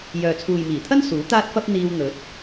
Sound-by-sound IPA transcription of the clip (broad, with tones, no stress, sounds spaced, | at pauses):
j œː˨ t͡sʰ uː˨ j m iː˨˩ t̪ʰ ɐ˥ n s uː˨˥ t̪ aː˥ t̚ f ɐ˥ p̚ n̪ iː˧ w n̪ ɵ˨˥ t̚